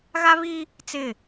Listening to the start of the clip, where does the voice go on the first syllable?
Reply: high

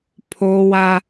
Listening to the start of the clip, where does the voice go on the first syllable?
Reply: high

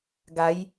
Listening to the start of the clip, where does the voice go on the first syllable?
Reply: rising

